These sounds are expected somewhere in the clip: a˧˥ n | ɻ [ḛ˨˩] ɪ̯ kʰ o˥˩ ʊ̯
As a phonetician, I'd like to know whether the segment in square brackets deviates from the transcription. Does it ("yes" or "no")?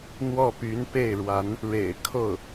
no